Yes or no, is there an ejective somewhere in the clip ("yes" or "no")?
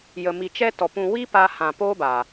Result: no